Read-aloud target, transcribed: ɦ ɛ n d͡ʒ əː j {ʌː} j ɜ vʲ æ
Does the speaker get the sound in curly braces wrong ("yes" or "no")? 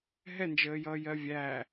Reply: no